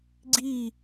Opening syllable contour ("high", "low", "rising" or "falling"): falling